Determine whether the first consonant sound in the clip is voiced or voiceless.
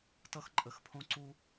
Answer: voiceless